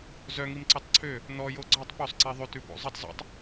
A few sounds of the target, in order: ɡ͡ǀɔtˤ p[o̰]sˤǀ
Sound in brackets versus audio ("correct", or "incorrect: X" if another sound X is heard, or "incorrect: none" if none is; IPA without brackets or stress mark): incorrect: o